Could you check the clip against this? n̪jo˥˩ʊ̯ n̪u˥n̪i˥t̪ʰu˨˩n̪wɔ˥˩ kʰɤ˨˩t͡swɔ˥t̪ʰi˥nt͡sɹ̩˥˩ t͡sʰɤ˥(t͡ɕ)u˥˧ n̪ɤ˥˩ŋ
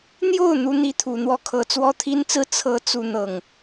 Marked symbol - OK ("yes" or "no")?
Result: no